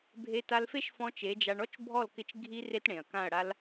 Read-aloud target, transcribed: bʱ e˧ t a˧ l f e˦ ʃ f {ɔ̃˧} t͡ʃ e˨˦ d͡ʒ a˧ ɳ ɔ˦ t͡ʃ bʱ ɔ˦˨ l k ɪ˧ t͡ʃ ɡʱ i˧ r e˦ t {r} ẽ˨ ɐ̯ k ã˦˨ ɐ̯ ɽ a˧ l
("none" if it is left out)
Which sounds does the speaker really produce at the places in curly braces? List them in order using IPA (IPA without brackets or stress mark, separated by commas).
ɔ̃˧, ɽ